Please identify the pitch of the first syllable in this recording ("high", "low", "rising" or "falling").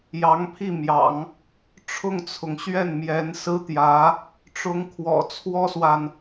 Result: rising